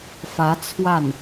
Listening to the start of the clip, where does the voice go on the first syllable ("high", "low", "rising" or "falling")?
rising